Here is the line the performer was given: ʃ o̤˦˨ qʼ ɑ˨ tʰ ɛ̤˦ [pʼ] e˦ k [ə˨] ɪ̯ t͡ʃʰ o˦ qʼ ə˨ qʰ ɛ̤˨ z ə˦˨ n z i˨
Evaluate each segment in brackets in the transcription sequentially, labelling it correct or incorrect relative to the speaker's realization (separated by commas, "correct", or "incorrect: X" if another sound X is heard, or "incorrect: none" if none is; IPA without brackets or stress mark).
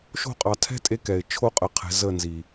incorrect: tʼ, incorrect: ɛ˨